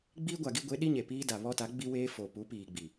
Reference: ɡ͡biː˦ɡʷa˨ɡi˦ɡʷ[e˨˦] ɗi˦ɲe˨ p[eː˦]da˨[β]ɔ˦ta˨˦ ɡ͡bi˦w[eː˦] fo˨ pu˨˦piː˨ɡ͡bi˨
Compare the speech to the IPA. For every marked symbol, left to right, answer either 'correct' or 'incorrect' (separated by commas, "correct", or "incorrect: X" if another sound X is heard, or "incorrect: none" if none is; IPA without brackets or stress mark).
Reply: correct, incorrect: iː˦, correct, correct